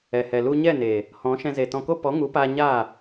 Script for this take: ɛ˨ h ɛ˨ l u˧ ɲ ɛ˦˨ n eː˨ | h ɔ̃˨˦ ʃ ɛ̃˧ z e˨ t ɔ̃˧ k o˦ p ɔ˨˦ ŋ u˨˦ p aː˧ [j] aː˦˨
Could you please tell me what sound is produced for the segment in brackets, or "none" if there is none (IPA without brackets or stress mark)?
ɲ